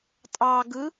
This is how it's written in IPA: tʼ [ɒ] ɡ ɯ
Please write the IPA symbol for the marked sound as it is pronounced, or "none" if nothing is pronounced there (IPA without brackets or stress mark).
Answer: ɑ